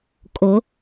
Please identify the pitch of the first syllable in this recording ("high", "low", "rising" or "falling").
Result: rising